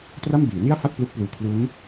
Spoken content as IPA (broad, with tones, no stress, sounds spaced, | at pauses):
t r a˥˩ m b iː˩˦ n i˥˩ a̯ f a˥˩ t̚ p l u˦˥ k̚ p l uː˨˩ kʰ l u˦˥ n